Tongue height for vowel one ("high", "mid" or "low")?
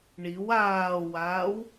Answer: high